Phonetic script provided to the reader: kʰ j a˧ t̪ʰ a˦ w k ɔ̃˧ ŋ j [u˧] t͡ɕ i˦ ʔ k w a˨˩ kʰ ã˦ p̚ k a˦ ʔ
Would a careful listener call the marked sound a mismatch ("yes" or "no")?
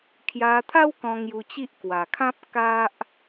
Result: no